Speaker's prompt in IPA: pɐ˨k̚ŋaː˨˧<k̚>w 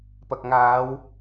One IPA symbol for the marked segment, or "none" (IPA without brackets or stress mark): none